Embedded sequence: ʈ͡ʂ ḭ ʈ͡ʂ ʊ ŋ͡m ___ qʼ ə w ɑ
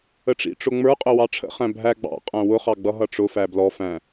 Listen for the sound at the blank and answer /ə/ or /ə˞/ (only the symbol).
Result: ə˞